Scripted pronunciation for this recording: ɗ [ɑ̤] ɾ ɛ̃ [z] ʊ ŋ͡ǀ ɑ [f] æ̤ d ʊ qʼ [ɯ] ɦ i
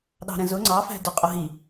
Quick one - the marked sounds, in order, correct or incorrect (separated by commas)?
correct, correct, correct, incorrect